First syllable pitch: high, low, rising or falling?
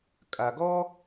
low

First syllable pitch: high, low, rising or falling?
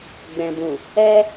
low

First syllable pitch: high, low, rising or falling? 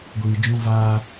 low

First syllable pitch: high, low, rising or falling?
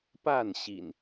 falling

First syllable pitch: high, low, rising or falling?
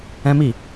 high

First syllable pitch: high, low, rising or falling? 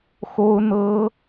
high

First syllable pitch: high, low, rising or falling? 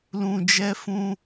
low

